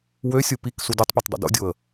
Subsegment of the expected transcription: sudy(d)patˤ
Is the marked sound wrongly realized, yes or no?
yes